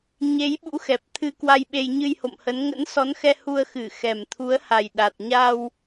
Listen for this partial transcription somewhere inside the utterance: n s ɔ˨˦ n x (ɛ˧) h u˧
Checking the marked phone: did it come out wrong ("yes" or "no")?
no